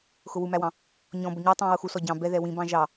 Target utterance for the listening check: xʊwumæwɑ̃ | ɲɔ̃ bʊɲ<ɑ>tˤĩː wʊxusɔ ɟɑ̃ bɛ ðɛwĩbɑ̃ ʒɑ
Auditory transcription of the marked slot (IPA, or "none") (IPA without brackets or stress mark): ɑ